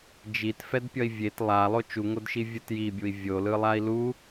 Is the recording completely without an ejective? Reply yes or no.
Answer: yes